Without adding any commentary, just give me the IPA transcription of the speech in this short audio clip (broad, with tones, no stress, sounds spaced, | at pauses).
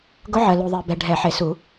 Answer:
ɡ ʊ˧˥ ʕ ɜ˨ l u˨ ðˤ e˨ b ɛ˨ ɖʱ ɛ˨˩˦ ħ e˨˩˦ s u˨˩˦